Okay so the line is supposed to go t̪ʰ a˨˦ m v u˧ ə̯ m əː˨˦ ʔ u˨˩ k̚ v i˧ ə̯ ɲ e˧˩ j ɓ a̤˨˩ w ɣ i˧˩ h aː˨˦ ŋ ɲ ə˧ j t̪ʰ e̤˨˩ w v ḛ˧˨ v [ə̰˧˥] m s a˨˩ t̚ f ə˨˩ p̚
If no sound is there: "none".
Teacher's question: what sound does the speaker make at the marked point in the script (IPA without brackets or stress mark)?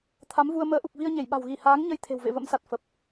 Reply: ə̰˧˥